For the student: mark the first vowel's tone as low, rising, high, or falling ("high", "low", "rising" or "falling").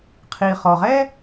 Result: low